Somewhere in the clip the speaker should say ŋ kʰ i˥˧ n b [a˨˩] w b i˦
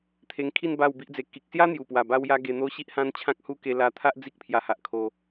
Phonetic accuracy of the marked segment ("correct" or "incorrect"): incorrect